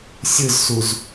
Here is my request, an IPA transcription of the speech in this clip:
sʲ ɯ z s u z

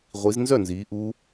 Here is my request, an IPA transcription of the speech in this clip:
ʁʷ i˨˦ z n z œ˥˨ n z iː˨˦ ʔ u˦˥

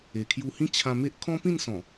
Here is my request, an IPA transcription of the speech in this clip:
e˨˩ kʰ j u˧ h ĩ˦ t͡ɕʰ ã˧ m e˦ ʔ kʰ ɔ̃˦ p ĩ˥˧ n s ɔ̃˨˩

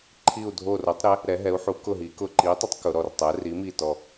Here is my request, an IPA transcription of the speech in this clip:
ǃʰ i˧˩ u̯ dʱ o˧˩ r o˩˥ tˤ ɾ ɪ˩˥ | ɾ ɛ˩˧ ɦ ɛ˩˧ u̯ ħ u˩˧ k ʊ˧˩ ɦ i˩˧ k ʊ˧˩ ǃ i˩˥ tˤ ɪ˩˥ tˤ k ʊ˩˧ ɾ ɔ˧˩ r tˤ ɛ˩˥ r i˩˥ m i˧˩ t ɔ˧˩

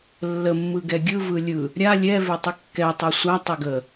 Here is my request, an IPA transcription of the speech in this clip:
lː ə mː ɯ ɡ ɛ ɡʲ ɯ v ɯ lʲ ɯ | ɾʲ a lʲ ɛ v e tˤ ɯ kː ɛ tˤ e sʷ a tˤ ɪ ɡ ə

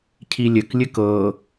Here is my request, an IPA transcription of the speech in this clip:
cʰ i lʲ ɘ k lʲ ɘ k ɤ

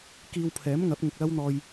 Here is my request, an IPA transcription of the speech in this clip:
k iː˧ w pʰ ɛː˨˥ m ŋ ɐ˨˥ p̚ ŋ ʊ˨ k̚ l ɐ˥ w n̪ ɔː˧ j

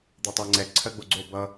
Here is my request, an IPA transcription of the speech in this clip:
d̪ e tˤ ɜ ŋ͡ǀ ɛ ǀʰ ɜ ɡ͡b o ɡ͡ǀ o b ʌ

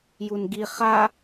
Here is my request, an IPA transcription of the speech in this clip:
j u n ɡ i χ a

